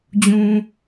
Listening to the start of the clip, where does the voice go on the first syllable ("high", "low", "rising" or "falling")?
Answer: low